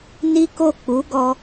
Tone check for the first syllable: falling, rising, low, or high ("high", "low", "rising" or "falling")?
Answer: high